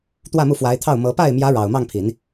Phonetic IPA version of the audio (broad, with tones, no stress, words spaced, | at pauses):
t̪wä˥˧mu˥˩fwa˧˥ɪ̯t̪ʰɑ˥˩ʊ̯ mɤ˧˥ pa˥˩ɪ̯mjä˧˥ ɻɑ˨˩ʊ̯mɑ˥˩ŋpʰi˨˩˦n